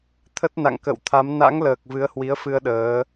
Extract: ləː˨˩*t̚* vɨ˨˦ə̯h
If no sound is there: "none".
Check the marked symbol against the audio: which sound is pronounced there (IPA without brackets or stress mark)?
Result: k̚